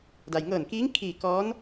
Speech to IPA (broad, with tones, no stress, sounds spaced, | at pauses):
d a˩ j ŋ ɤː˧˩ n k iː˧˥ ŋ kʰ iː˧˩ k ɔː˧˥ n